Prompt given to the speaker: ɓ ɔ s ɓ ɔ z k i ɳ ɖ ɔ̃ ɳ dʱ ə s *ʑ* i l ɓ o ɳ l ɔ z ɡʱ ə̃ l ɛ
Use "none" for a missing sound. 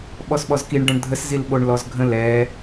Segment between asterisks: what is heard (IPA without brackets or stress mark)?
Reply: z